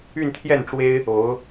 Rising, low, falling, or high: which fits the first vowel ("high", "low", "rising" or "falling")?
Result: falling